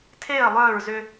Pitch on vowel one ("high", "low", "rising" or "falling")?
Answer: falling